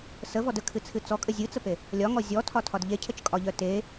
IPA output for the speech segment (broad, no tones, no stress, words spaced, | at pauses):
səvɔd əkʰɨt͡sʰɨ t͡sɔkʼə zʲɨt͡səpe | lʲɒŋɔ zʲɔtʰɒtʰɒd ʎecʰət͡ʃkʼɒʎœ te